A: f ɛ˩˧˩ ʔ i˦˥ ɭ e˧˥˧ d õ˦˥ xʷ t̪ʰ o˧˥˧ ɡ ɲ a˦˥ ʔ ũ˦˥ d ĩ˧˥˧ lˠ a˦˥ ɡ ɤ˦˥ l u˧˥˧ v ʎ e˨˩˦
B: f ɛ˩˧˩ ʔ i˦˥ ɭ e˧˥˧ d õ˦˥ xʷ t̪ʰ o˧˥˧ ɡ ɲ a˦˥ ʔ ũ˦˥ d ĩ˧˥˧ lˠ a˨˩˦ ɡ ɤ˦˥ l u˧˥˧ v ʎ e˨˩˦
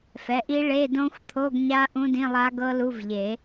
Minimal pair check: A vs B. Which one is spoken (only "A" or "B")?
A